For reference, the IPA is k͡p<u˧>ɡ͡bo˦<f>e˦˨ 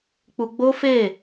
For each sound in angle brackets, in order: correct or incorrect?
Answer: correct, correct

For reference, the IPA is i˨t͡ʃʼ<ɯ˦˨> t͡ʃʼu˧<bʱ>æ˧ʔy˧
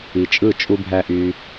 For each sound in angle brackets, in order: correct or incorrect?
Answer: correct, correct

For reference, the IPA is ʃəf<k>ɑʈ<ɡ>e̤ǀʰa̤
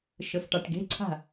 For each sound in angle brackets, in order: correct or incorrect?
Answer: incorrect, correct

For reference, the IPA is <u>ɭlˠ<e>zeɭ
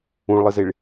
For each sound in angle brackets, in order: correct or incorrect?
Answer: incorrect, incorrect

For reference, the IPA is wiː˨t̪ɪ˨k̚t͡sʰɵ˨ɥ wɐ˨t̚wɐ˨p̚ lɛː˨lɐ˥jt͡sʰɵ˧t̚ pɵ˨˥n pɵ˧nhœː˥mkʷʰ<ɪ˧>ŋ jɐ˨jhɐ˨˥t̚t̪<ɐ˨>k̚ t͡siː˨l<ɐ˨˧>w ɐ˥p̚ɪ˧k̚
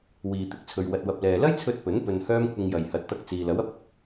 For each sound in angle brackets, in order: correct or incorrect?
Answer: correct, incorrect, incorrect

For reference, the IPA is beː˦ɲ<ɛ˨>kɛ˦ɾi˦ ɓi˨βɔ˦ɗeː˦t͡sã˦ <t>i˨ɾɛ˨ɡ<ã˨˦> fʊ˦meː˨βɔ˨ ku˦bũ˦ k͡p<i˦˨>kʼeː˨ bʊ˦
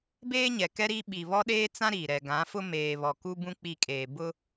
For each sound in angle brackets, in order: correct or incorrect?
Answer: correct, incorrect, correct, correct

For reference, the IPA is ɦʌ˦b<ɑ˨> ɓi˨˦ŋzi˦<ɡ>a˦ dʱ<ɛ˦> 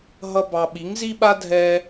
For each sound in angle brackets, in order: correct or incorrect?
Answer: incorrect, incorrect, incorrect

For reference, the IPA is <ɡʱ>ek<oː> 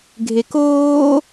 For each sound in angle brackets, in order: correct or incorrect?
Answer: correct, correct

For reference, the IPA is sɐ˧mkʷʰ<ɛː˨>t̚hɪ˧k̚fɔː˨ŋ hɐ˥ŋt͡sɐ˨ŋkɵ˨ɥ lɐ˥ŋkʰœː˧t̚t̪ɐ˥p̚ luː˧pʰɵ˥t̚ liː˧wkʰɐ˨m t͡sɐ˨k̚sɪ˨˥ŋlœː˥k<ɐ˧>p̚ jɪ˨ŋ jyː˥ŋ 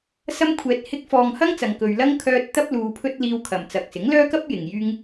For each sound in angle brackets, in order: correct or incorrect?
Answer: correct, incorrect

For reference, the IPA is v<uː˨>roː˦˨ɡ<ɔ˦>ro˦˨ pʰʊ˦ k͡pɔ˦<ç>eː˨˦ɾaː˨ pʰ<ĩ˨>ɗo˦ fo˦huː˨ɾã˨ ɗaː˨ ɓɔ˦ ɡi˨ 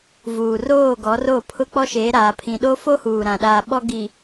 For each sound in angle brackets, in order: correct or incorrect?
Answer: correct, incorrect, incorrect, correct

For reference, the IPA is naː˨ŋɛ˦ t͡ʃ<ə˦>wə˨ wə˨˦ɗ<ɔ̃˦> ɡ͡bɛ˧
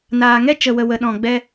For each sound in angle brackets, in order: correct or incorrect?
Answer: incorrect, incorrect

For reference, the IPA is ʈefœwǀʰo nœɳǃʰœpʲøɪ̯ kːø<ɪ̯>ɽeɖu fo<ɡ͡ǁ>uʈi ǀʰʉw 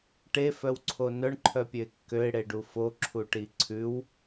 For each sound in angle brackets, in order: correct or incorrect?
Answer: correct, incorrect

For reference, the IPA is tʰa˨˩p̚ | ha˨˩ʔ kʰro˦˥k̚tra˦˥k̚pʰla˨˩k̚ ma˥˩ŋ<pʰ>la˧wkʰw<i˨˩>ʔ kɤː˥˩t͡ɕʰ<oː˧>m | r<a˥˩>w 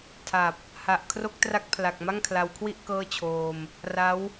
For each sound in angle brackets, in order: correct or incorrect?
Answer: incorrect, incorrect, correct, incorrect

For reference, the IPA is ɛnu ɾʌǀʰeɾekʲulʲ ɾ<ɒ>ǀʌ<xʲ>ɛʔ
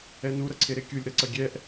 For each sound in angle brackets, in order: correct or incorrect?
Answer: incorrect, incorrect

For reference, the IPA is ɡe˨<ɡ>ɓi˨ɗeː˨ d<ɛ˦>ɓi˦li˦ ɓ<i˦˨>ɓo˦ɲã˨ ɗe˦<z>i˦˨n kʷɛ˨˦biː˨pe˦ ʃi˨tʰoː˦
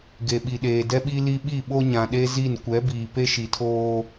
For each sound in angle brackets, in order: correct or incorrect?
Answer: incorrect, correct, correct, correct

